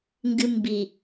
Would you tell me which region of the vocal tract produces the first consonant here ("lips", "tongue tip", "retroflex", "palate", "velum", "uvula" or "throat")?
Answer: velum